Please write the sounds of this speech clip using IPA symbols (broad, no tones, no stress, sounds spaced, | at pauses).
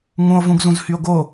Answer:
ŋ ũ o̯ v ũ ɡ z ũ z h y o̯ ɡ o